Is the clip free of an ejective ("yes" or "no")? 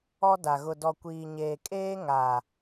no